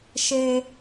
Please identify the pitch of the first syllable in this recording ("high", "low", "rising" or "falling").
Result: high